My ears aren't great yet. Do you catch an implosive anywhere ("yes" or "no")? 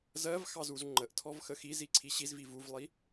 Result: no